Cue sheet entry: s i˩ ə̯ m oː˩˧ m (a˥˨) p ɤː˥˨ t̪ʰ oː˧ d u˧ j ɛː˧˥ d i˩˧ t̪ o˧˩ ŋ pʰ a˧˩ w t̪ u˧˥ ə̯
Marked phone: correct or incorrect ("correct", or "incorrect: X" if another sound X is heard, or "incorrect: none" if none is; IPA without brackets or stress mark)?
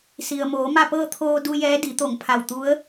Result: correct